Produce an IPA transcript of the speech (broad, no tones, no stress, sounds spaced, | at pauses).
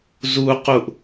z u q u ʔ